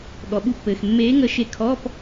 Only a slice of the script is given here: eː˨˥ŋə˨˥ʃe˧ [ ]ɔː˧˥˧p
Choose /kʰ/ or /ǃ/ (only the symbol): kʰ